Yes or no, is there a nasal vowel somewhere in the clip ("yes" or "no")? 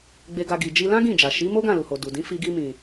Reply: yes